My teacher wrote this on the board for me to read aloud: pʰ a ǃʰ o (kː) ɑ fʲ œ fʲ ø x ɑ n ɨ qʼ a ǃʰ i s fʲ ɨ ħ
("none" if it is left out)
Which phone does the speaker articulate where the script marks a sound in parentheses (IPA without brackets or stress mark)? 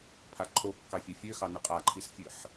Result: kː